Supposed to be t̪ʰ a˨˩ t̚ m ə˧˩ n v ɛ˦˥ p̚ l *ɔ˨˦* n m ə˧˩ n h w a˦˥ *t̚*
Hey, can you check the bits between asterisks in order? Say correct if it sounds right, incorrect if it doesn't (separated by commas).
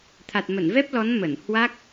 correct, incorrect